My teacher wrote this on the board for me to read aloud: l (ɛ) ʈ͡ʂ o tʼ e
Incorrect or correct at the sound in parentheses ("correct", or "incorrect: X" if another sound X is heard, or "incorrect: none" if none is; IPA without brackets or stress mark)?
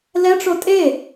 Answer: correct